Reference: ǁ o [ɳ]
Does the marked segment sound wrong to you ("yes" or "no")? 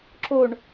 no